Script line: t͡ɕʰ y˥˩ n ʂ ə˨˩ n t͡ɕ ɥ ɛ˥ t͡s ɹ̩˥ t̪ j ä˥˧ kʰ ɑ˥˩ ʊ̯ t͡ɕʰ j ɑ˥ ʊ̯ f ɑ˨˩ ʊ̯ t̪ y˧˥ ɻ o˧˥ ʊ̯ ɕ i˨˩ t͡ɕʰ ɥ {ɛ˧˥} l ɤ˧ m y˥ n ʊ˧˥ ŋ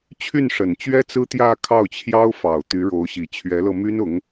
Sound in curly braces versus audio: correct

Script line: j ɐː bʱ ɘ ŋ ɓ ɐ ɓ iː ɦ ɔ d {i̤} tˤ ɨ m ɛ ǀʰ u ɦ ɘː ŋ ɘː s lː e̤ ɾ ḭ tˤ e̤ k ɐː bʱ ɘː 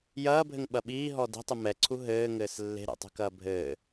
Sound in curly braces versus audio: correct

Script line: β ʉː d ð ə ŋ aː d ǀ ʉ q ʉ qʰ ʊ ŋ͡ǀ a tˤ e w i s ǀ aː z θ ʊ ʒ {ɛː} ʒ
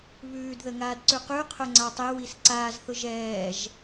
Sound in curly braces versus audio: correct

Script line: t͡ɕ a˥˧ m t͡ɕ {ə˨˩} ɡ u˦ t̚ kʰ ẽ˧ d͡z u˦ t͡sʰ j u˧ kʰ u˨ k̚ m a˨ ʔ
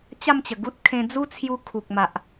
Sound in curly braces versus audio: correct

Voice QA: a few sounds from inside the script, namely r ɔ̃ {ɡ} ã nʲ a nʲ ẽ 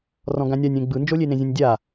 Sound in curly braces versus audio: correct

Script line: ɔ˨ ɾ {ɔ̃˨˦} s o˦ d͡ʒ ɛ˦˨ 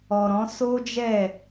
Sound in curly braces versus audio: correct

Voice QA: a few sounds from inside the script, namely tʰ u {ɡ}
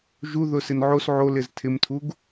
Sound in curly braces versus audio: correct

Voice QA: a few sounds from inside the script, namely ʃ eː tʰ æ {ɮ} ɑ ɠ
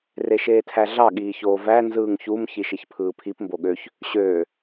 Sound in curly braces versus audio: correct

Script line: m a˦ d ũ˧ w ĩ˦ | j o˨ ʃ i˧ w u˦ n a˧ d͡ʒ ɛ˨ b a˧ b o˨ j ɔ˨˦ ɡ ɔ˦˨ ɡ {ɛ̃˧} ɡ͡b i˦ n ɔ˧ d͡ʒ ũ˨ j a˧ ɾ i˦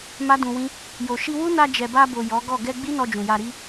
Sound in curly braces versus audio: incorrect: ɛ˧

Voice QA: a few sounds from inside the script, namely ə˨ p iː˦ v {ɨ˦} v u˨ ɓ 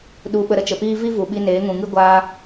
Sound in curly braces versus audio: incorrect: i˦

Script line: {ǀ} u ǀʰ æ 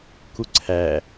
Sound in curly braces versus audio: incorrect: k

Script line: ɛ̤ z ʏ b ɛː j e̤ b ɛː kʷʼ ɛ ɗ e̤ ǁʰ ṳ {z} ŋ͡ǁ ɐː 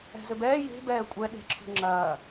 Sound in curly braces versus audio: incorrect: none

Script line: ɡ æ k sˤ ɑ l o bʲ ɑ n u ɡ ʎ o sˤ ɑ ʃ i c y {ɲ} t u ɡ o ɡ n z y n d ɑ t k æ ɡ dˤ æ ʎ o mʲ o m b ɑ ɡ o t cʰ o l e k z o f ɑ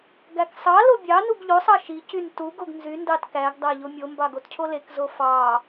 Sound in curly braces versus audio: incorrect: n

